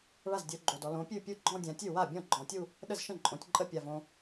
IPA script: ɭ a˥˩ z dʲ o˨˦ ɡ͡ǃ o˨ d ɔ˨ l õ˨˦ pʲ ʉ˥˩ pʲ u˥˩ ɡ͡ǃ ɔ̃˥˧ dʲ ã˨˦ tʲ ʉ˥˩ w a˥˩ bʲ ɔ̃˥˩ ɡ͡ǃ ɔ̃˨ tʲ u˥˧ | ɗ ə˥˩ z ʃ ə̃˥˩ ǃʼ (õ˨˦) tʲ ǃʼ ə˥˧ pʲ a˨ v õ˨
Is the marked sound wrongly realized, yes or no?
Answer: no